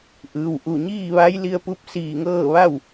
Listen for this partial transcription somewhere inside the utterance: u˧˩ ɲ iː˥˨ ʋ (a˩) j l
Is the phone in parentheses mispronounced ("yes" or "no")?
yes